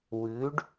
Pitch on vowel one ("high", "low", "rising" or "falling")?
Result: rising